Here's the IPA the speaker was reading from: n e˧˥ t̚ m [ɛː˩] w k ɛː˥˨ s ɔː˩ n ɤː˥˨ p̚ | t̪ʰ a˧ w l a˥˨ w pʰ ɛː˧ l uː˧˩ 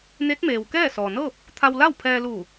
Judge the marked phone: incorrect: eː˩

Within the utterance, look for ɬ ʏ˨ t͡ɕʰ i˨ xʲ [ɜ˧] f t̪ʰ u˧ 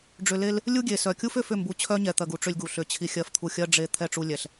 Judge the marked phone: correct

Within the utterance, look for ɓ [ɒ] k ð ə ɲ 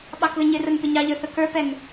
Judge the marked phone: incorrect: ɑ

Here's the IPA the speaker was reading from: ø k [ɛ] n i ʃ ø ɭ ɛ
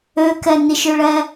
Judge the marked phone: correct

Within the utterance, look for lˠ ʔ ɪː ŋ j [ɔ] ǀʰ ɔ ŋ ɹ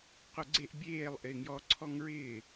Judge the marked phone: correct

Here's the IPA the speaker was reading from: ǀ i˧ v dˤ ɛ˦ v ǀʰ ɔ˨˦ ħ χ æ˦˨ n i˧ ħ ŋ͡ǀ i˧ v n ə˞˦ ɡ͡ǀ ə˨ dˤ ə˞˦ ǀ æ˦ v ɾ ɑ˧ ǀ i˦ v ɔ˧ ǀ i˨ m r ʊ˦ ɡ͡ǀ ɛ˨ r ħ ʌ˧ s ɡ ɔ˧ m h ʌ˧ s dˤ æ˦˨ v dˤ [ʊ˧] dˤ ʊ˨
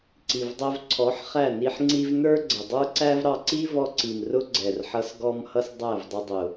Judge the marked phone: correct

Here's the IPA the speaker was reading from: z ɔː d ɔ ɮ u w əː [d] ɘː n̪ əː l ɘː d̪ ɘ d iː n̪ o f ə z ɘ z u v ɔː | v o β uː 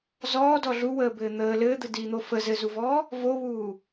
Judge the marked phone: incorrect: b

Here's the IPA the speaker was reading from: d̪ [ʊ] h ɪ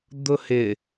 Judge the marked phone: correct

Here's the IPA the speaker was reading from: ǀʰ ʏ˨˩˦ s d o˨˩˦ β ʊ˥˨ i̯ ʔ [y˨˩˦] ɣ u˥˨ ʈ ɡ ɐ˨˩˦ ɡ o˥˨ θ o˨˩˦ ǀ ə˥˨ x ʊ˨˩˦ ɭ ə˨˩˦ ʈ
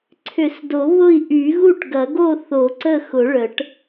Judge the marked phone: correct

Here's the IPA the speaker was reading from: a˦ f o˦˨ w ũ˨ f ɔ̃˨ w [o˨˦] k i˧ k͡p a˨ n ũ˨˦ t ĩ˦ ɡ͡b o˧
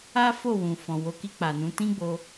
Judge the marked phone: correct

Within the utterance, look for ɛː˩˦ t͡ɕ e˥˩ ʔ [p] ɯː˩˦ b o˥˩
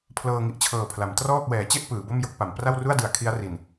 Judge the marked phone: correct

